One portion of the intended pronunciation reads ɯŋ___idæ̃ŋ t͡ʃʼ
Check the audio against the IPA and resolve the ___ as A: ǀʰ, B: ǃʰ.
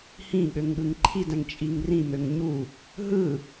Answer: B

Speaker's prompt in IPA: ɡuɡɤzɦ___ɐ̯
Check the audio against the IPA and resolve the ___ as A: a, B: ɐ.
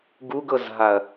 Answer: A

